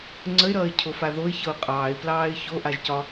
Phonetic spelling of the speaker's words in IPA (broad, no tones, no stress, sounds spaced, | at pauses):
ŋ͡ǀ ə ɪ̯ ɾ ʌː ɪ̯ cʰ o f a ð o ɪ̯ ç ɤ ʊ̯ qʼ ɑː ɪ̯ p l ɑː ɪ̯ ç o ʔ a ʒ c ɒ